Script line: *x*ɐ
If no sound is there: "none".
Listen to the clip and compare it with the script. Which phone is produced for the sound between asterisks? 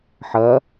ħ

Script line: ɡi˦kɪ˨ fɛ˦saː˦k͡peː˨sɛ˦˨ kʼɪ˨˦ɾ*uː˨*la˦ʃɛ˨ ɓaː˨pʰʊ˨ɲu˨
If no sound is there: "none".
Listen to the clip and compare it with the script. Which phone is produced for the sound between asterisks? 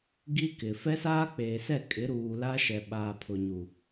uː˨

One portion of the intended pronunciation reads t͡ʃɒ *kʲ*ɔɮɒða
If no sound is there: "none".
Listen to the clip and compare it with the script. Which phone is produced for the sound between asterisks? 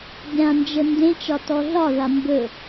t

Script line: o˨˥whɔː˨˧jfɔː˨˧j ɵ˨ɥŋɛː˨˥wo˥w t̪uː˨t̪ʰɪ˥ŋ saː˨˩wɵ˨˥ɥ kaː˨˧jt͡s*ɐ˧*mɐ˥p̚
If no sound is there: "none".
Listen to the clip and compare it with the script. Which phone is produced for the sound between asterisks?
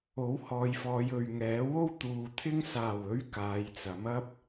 ɐ˨˥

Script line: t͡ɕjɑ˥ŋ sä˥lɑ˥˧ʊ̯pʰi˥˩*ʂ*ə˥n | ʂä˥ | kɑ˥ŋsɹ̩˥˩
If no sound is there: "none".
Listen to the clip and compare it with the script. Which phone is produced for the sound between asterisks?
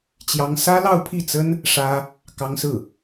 t͡s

